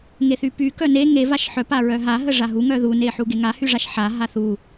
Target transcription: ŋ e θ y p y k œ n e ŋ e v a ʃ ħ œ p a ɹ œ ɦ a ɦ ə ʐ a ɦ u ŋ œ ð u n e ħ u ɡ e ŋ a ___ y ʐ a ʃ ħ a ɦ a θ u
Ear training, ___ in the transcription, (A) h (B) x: A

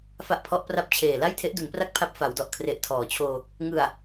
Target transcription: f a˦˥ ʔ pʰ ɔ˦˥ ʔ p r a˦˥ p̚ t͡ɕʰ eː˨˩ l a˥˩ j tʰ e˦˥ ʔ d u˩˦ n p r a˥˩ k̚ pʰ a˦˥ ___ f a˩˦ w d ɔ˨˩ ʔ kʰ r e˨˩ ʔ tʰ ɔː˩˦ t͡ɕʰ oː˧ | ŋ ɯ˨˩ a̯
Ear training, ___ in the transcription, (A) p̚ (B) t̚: A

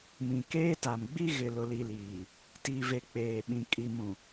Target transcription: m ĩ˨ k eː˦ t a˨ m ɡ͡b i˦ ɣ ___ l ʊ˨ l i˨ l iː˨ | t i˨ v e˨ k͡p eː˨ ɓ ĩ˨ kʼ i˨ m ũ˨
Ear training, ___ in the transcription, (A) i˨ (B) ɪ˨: B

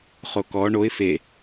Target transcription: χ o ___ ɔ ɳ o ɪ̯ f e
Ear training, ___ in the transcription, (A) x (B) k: B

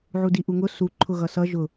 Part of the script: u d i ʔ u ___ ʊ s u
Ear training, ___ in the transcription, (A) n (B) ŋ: B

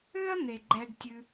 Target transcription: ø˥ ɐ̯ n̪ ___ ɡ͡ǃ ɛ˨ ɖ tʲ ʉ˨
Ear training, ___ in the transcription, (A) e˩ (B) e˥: A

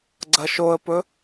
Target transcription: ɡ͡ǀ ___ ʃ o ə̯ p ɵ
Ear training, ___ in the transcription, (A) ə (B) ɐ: B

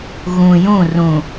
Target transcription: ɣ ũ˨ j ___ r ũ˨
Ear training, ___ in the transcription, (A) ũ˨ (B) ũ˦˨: B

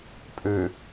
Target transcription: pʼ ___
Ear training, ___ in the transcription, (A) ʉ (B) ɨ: A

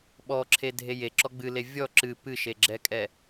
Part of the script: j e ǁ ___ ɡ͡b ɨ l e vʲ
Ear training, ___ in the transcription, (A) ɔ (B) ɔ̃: A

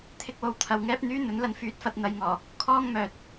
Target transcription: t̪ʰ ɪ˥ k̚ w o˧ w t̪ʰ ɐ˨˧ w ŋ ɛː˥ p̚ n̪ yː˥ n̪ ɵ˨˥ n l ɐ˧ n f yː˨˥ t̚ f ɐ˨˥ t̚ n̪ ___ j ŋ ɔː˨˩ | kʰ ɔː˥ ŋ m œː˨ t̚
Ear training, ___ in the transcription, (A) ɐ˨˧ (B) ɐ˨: A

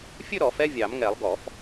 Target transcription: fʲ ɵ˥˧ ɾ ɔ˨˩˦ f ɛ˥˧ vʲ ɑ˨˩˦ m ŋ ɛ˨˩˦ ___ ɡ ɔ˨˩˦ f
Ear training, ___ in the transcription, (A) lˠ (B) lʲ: A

